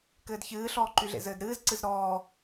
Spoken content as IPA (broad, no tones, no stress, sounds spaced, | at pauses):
k ɘː d ç ɨː ɬ ɔː ǃ y ɮ ḛ z ɘː d ɾ ɨː z ǀ ɨ z ɾ ɔː